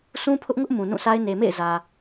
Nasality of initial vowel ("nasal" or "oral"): nasal